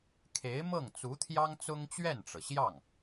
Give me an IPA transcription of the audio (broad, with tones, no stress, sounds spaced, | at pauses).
kʰ e˧˥ ɪ̯ m ɤ˥˩ ŋ t͡s u˧˥ t̪ʰ j ɑ˥ ŋ t͡s ʊ˥ ŋ t͡ɕ ɥ ɛ˥˩ n ʈ͡ʂ ɤ˩ ɕ j ɑ˥˩ ŋ